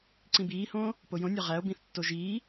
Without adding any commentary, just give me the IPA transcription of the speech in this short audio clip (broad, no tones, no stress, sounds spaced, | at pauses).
ǀ ĩ b iː h õː | p o j õ nʲ ɒ ʁ æ o̯ b ĩ θ tː o ʒ iː